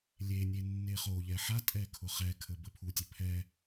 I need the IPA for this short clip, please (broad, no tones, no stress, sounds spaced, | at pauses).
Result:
lʲ e nʲ e nː e χ o ʎ ɛ ħ a tʼ ɛ kʰ ʊ χ ɛ kʰ ə b ə pʰ u tʲ ɘ pʰ ɛ